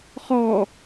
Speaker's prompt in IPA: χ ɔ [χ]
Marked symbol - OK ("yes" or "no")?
no